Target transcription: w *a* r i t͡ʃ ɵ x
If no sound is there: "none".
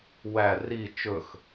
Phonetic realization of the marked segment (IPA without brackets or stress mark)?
æ